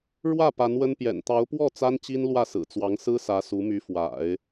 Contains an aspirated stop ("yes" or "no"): no